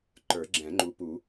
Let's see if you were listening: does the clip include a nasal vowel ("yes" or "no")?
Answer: yes